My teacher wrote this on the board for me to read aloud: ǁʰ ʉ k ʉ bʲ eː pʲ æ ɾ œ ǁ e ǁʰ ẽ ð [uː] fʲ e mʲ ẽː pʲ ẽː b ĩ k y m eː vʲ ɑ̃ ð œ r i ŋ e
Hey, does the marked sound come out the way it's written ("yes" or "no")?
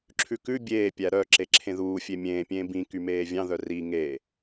yes